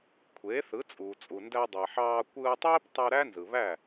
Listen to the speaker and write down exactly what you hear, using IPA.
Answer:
kʷʰ eː˩˥ θ ɯ˩˥ t͡sʼ uː˩ t͡sʼ u˩ n d æ˧ dˤ e˩ ħ ɑː˧ kʷ ɯː˧ tˤ eː˥ p tˤ ɯ˧ ɾ æ˥ n z ɯ˩ β æ˥˩

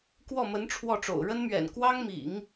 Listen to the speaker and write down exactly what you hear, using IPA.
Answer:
k w ɔ˥˩ m ə˧˥ n ʈ͡ʂʰ w ɔ˥˩ ʈ͡ʂ o̰˨˩ ʊ̯ ɻ ə˥ n m ɥ ɛ̰˨˩ n k w ɑ˥ ŋ m ḭ˨˩˦ ŋ

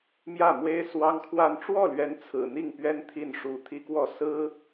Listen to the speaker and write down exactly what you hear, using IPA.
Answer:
m j ä˥˩ m w e˥ ɪ̯ s w ɑ˥ ŋ kʰ w a˥˧ n ʈ͡ʂ w ɔ˥˩ l ɥ ɛ˧˥ n t͡sʰ ɹ̩˨˩ n̪ i˥˩ ŋ p ɥ ɛ˥ n t̪ʰ i˥˩ n ʂ u˧˥ t̪ʰ i˥ k w ɔ˥˩ s ɹ̩˥

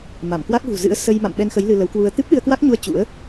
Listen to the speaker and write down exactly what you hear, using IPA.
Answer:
m a˧˩ m k w a˦˥ k̚ ɣ ṳ˨˩ z ɨ̰˧˥ ə̯ s ə˧ j m a̰˧˨ m ɓ ɛ˧ n x ə˨˦ j l ɨ˧ l ə˨˦ w k w u˧ ə̯ t̪ ɨ˦˥ p̚ ɗ ɨ˧ ə̯ k w a˦˥ k̚ ɲ u˧ ə̯ t͡ɕ ṵ˧˥ ə̯

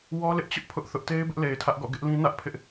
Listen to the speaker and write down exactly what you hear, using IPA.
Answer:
w ɔ˦ l ɪ˦ ʔ t͡ɕ ʊ˦ ʔ pʰ ʊ˦ ʔ θ ʊ˦ ʔ t e˦ ɪ̯ b ɪ˦ ʔ l e˨ ɪ̯ tʰ ä˦ ʔ ɡ ɔ̰˦˨ ɡ ɪ˦ ʔ l ĩ˦ n ä˦ ʔ pʰ ɪ˦ ʔ

